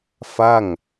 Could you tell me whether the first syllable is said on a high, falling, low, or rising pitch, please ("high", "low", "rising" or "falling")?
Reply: falling